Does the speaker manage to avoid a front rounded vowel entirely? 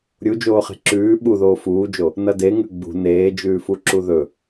yes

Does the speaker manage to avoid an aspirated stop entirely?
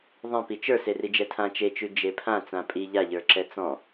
no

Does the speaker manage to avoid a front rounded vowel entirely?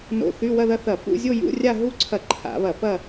no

